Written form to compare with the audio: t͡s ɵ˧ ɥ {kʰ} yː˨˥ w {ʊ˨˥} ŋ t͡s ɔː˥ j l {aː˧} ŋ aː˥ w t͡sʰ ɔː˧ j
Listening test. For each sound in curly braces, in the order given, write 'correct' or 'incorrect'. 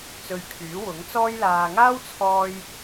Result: correct, correct, correct

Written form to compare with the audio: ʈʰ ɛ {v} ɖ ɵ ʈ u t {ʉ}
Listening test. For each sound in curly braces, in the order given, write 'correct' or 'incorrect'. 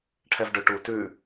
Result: correct, correct

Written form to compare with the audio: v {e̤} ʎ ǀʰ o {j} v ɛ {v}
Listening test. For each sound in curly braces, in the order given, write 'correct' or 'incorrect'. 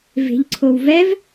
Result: correct, incorrect, correct

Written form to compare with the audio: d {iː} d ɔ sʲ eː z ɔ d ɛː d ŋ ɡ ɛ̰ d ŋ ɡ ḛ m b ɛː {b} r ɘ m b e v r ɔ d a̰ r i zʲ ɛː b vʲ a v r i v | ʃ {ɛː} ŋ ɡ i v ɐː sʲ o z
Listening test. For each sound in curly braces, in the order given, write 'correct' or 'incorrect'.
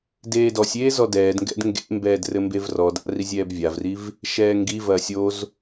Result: incorrect, incorrect, correct

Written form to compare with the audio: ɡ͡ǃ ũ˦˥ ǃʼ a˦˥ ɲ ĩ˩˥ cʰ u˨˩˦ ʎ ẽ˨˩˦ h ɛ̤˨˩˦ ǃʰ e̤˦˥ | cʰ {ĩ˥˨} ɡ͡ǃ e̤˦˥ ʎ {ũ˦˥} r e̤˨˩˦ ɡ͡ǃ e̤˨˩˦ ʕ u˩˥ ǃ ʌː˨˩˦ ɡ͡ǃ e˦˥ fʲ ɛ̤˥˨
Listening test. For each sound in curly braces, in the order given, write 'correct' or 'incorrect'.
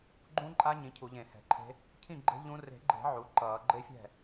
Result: correct, correct

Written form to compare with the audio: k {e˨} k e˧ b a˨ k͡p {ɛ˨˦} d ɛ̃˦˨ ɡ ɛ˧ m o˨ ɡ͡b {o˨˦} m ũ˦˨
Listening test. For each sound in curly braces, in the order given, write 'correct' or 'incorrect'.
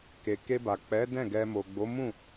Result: correct, correct, correct

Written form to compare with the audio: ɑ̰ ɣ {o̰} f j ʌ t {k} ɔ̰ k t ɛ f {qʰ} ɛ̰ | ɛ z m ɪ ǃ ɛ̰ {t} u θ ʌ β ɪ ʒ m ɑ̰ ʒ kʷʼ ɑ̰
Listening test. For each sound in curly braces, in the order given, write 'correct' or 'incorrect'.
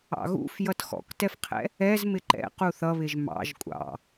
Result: incorrect, incorrect, correct, incorrect

